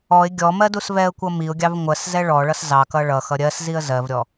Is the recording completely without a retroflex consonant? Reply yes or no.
no